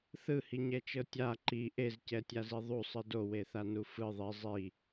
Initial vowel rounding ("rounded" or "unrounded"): unrounded